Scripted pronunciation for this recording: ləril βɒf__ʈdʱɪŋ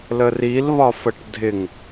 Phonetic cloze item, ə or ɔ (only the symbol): ə